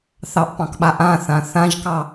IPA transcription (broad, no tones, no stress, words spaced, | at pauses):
θɑʔpɑ̃kɓa ʔãθã θãʒkɑ